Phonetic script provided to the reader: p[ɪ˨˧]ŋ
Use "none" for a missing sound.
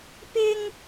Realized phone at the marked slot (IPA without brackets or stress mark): ɪ˥